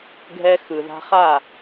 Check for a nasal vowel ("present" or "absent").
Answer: absent